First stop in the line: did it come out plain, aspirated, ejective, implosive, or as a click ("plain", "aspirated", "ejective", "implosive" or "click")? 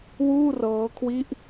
aspirated